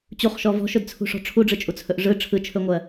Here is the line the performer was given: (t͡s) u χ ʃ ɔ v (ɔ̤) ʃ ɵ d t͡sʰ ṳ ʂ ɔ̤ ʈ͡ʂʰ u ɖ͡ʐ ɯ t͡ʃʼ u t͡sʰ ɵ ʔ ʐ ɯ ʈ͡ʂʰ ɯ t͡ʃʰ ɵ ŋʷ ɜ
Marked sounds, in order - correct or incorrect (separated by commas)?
incorrect, correct